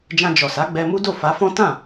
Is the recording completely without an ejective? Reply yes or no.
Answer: yes